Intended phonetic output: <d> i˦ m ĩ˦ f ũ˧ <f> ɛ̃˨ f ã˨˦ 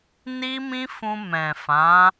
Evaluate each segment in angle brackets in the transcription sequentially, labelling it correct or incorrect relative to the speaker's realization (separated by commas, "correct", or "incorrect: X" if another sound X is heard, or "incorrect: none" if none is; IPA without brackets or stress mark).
incorrect: n, incorrect: m